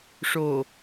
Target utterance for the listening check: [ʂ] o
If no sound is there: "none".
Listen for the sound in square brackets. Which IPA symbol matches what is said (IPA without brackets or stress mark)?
ʂ